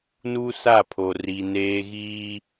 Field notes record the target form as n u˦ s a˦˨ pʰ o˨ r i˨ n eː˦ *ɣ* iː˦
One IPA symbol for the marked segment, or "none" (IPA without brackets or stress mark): ɣ